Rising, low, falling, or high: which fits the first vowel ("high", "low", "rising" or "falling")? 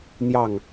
falling